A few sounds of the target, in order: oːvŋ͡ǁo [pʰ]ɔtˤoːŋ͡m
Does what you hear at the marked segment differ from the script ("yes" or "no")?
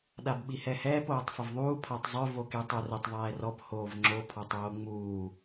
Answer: no